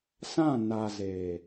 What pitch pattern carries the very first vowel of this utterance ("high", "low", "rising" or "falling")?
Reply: falling